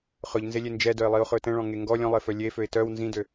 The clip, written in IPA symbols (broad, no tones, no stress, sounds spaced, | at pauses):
χ ɵ ʎ n z e lʲ e n d͡ʒ ɛ d œ ɪ̯ lˠ i ʊ̯ χ ɵ t ɛ̃ ɭ ɔ̃ ŋ e ŋ ɡ ɔ lʲ ɔ̃ lˠ e f œ lʲ e f ø ɪ̯ t œ w n z ĩ d ø